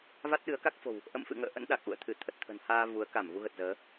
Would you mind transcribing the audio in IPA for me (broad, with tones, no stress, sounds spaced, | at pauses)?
v a˦˥ t̚ ɗ ɨ˨˦ ə̯ k a˦˥ k̚ f o̤˨˩ w | ʔ ə̰˧˨ m f ɨ̰˧˨ ŋ ə̰ː˧˨ ʔ ə̰˧˥ n ɗ a˨˩ k̚ ʔ ṵ˧˨ ə̯ t̪ʰ ɨ˧˩ t̪ʰ ə˨˩ t̚ t̪ʰ ə̤˨˩ n h aː˧ v u˨˦ ə̯ k a˧˩ m v u˧ ɣ ə˨˩ t̚ z əː˨˦